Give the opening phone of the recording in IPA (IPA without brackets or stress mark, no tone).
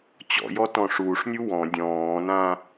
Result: t͡ɕ